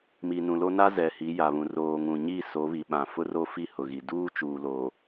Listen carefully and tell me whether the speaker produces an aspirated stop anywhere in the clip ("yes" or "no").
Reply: no